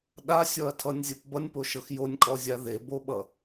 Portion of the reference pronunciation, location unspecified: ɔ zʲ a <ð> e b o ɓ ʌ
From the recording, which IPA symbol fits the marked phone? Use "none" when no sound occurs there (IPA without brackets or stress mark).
ð